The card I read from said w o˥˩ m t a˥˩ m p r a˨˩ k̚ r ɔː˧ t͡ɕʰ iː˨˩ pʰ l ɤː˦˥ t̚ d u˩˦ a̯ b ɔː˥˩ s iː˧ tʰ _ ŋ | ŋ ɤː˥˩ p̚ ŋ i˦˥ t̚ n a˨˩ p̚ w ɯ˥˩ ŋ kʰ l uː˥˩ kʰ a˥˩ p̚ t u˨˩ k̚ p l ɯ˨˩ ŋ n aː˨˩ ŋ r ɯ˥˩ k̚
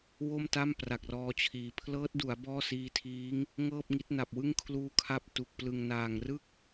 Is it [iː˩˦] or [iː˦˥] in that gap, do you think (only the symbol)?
iː˦˥